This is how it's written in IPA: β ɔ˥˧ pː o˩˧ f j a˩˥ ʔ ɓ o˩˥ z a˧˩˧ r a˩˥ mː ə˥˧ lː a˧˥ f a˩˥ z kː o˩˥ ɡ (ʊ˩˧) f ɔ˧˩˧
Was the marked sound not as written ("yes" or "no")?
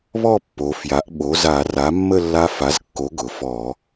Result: no